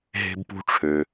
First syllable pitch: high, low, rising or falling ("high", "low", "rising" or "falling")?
high